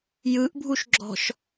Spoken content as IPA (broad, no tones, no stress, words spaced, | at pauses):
jɯʔbʱuʃɡ͡ǁɔ̤ʃ